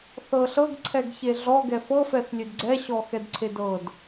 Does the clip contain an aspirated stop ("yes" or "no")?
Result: yes